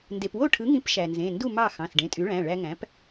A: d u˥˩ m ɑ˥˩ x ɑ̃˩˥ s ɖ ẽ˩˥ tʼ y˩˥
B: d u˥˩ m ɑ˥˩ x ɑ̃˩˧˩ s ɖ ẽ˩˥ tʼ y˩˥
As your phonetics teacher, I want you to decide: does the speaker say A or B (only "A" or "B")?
B